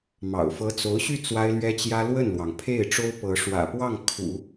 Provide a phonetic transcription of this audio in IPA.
mɑ̰˨˩ʊ̯ fɤ˧˥t͡so˧˥ʊ̯ɕy˥˩ t͡swa˥ɪ̯lɥɛ˥t͡ɕjä˥ lwə˥˩nlwɑ˩ŋpʰe˥˩ɪ̯ ʈ͡ʂo˥ʊ̯pɤ˧˥ ʂwä̰˨˩pwɑ˥˩ŋ kʰṵ˨˩˦

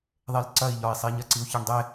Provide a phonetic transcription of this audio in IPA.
ðˤelǀɐi̯ʎɒi̯sˤi ɲɐǀiu̯çiɳdˤe

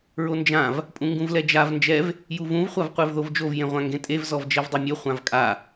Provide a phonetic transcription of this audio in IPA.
ɹond͡ʒãv | pʼũŋɡũvlɛd͡ʒav nd͡ʒɛv | juvũv χʷavqʷevðovd͡ʒov jẽʁʷãŋɡẽtʼev zɔvd͡ʒɛvdˤemʲo χʷãvkʼa

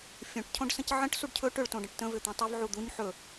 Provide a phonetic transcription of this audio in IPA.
fʲõʈ cʰõɖsə̃cʕə̃ʈ suɖcʰɵ ʈʏɭ tõɖə̃ʈtə̃ vʏt̪ũtˤʏv ʕud̪uɲ ħɵ

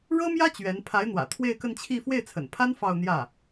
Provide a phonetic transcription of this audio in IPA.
ɻɤ˥mjä˥ t͡ɕɥɛ˧˥n pʰa˧˥ɪ̯n̪wä̰˨˩ t̪ʰwe˥˧ɪ̯kə˥˧nt͡ɕʰi˥˧ fwe˥˩ɪ̯t͡sʰə̰˨˩npʰa˥n fɑ˥˧ʊ̯n̪jä˥˩

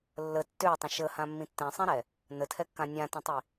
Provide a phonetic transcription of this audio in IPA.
lːə tːøtˤə̃ ʃəhãmːĩ tːɛ̃sˤĩɾɛ | nətʰɛkːã nʲãtə̃tˤi

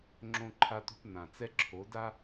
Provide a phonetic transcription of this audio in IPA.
ŋ͡ǁõ˦ǃʰa˦tṳ˦p n̪ã˨t͡sɛ˦ǁʰo˨˦da˦

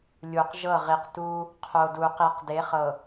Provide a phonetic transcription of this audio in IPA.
lʲu˨q ʒɤ˦˨ʁi˨qtu˦ | qʰo˨du˨qi˨q de˨˦χɤ˨

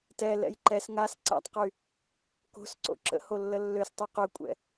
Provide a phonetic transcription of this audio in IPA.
tɛ lɛ̰jǃɛs ŋas ǀa̰tˤqy | ko̤sǀo̰ ǁə̰ho lːəlːøstˤy qøkʷʼɛ̰

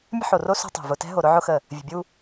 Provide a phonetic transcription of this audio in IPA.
mʲə̤˦ħo˨ro˦ so̤˦tˤɛ̤˨ vʊ˨tɛ̤˦ɦo˨ ɾʊ˦ʕʊ˦ xə˦˨ | vʲə̤˨bʲu˦

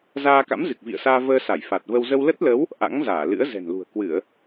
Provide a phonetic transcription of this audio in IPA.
zaː˧ka̰˧˥mzɨ˨˩k̚ vḭ˧˨ə̯saː˧vəː˧ sa˧˩jfa˨˩t̚və˧w zə˧wlə˦˥t̚lə˨˦w | ʔa̰˧˥ŋzaː˧˩ lɨ̰˧˥ə̯zɛ̤˨˩nlṳ˨˩ə̯ kwɨ˧˩˨ə̯

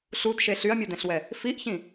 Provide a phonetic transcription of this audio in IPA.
ɬudʃe ɬyɐ̯mʲodɛ̃ɬwɛ | fiʔçĩ

